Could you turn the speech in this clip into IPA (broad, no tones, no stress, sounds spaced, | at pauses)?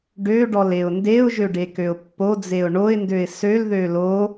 ɖ ø ɖ ɔ l e ʊ̯ n d e ʊ̯ ʒ ø ɖ e k ø ʊ̯ pː o d͡z e ʊ̯ ɳ o ɪ̯ n d ø ɪ̯ s ø l ð ø l o